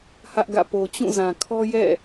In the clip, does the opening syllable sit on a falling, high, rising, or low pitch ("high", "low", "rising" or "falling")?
high